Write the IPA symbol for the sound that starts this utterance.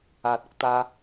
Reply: aː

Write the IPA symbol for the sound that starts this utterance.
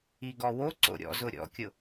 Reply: i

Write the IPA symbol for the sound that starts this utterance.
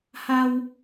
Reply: h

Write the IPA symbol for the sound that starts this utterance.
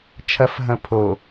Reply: t͡ʃʰ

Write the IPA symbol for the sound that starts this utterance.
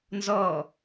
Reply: n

